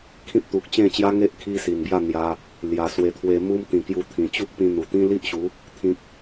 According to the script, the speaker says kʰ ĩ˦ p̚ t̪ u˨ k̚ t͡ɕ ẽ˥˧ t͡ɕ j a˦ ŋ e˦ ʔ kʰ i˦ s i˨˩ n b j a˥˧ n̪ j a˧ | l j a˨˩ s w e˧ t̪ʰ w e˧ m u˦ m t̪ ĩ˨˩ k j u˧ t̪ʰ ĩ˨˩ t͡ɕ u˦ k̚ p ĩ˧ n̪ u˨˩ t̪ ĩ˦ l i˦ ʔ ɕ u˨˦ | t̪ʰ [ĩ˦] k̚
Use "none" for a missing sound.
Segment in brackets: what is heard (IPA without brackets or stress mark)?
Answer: ĩ˨